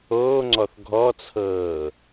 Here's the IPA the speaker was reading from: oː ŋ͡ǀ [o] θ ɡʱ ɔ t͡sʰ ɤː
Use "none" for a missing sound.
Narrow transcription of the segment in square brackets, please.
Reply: ɔ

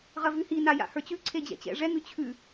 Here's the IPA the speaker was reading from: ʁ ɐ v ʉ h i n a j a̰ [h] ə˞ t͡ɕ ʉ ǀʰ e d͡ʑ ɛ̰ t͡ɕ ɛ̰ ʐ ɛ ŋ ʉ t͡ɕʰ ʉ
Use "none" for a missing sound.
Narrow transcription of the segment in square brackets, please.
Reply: h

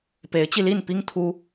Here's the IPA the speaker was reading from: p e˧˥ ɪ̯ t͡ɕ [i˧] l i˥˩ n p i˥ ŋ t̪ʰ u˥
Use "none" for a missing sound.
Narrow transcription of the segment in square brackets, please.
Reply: i˧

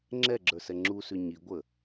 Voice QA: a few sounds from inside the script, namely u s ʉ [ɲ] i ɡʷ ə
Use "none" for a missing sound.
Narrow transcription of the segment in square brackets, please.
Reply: ɲ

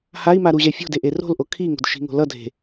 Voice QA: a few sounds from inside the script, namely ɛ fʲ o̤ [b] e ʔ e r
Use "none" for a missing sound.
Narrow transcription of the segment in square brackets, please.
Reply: d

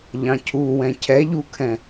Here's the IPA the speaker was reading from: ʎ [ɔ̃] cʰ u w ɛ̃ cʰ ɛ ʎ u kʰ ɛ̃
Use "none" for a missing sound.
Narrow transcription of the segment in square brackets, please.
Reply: ɑ̃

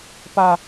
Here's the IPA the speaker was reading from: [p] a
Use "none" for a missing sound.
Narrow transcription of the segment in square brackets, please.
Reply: p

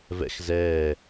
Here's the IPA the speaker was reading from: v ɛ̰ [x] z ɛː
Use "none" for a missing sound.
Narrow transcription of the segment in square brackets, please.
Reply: x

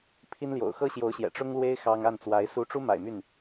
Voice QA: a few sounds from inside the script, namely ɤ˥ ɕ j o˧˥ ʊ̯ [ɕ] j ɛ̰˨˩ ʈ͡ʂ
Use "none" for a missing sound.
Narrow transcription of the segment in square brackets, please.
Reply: ɕ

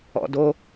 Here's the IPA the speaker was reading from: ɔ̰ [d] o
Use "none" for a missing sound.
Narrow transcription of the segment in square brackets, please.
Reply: d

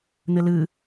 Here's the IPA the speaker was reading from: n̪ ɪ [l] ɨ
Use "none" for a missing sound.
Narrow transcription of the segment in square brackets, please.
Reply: l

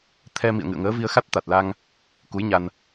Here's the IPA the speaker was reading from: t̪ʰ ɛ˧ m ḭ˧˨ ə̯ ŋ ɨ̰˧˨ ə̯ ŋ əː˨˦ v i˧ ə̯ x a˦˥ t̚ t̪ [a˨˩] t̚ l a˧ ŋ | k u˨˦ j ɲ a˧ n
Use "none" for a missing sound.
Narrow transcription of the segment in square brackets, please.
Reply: a˨˩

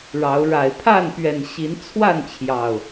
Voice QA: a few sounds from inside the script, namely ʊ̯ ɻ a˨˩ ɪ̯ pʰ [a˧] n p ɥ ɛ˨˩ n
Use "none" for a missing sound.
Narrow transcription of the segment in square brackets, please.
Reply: a˥˨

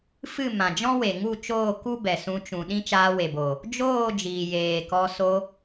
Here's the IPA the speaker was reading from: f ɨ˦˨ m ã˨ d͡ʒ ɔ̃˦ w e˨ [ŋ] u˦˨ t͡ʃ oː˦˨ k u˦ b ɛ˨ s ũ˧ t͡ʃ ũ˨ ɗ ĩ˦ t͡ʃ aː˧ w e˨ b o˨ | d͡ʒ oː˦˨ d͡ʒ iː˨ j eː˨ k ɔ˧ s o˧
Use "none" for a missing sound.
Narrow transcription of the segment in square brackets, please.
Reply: ŋ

